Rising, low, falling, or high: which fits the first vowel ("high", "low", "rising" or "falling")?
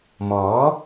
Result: rising